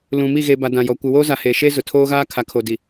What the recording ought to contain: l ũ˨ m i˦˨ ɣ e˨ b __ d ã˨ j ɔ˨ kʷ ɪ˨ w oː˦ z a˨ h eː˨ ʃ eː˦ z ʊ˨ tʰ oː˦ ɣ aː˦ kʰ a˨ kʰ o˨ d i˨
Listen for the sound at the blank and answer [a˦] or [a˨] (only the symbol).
a˨